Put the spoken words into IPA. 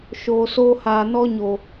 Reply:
ʃ oː˨ s oː˧ h aː˨ n ɔ˧ ɲ o˨

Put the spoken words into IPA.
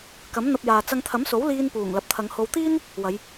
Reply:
k ɐ˨˥ m n̪ ɐ˧ p̚ j aː˨ t͡s ɐ˧ ŋ t̪ʰ ɐ˨˥ m s o˨˥ w l iː˧ n p uː˨˩ ŋ l ɐ˨ p̚ t̪ʰ ɐ˨˧ ŋ h o˧ w t̪ iː˥ n | w ɐ˨˧ j

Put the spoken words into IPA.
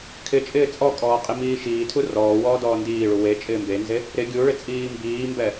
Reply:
kʰ ɪ t͡ʃʼ ɪː t͡sʼ ɔ kʼ ɔː qʼ i m iː ʃ iː tʰ u r ɔː w ɔː d ɔː n d iː ɭ u w e t͡ʃʼ ɪː m b e n z e | ɾ ɪ ɡʲ u ɭ ɪ t͡sʼ iː m b iː m b ɛ

